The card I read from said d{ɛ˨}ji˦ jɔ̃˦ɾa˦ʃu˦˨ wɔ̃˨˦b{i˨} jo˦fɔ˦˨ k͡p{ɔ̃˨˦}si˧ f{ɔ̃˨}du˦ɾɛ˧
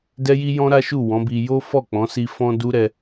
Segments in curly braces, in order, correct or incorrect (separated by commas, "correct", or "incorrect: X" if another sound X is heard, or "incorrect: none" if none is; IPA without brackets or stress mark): incorrect: ɛ˦, incorrect: i˧, correct, incorrect: ɔ̃˦